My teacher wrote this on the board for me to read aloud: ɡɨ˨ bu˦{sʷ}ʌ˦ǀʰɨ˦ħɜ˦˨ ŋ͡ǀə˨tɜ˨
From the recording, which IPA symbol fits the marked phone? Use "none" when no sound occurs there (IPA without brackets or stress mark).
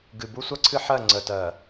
sʷ